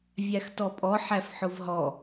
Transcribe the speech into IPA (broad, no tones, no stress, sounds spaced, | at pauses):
vʲ æ x t ɔ pʼ ɔ ħ æ f ħ ʊ v ɦ ɔ